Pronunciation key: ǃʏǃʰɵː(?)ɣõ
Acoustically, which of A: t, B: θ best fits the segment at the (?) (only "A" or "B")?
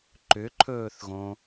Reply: B